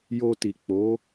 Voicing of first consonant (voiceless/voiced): voiced